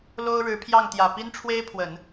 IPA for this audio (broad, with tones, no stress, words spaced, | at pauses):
lo˥ʊ̯ɻɻ̩˧˥pʰjɑ˥˩ŋt̪jä˨˩ pi˥nʈ͡ʂʰwe˥ɪ̯pʰwə˨˩˦n